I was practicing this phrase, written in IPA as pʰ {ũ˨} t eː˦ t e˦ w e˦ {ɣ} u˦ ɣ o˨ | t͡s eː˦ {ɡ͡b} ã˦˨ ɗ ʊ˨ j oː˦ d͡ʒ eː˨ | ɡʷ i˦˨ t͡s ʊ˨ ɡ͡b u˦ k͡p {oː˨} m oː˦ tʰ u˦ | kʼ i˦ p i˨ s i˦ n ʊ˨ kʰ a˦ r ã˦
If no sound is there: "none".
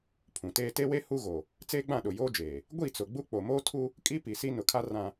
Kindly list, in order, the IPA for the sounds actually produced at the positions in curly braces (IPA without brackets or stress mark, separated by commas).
ũ˨, h, ɡ͡b, o˨